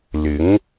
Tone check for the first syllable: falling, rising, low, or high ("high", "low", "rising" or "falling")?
rising